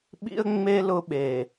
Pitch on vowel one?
high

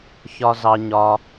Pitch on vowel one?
high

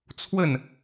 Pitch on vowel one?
falling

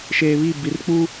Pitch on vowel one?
low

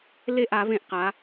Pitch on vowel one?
falling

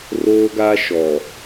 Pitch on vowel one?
high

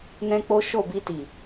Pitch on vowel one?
high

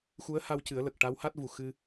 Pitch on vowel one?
rising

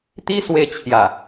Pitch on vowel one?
high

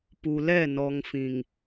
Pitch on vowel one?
low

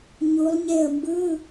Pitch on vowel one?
rising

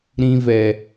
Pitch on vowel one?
low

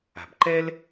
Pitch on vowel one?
low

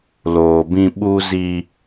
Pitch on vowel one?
low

